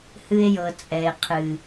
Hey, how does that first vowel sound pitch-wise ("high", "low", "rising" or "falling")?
high